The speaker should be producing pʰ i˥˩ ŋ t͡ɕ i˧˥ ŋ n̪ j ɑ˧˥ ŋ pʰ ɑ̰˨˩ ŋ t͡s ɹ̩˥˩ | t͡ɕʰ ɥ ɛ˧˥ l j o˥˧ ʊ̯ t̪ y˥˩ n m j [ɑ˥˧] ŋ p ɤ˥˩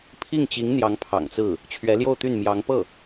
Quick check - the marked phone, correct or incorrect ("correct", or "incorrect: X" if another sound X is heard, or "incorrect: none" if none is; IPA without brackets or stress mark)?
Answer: incorrect: ɑ˧˥